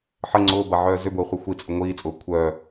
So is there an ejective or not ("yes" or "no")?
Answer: yes